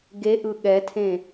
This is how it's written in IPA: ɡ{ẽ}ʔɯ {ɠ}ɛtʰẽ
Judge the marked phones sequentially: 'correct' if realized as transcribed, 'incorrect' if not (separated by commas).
incorrect, correct